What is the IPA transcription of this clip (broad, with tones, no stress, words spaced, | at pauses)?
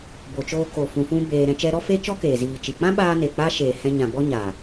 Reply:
bo˨t͡ʃoː˧ ko˨fũ˨ fũ˧ beː˧ɾɛ̃˧t͡ʃɛ˦ ɾɔ˦fe˦t͡ʃɔ˦ keː˨ziː˨t͡ʃi˨ k͡pã˦ɓaː˧ne˨ k͡pa˦ ʃeː˨hɛ̃˧ɲã˨ bɔ˦ɲaː˨